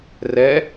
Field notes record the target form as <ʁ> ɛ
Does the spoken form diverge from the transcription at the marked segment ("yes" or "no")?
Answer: yes